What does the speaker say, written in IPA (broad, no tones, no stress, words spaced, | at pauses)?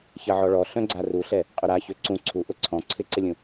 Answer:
çɐʕɔɭɔ ɬœ̃ɡ͡ǀaruɬɛ | qʼʊɾaçø ǀũ ǀʰuʔʊ ǀʰɔ̃ ǀʰɪǀɪlʲũ